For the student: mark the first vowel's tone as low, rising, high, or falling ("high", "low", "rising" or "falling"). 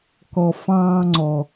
low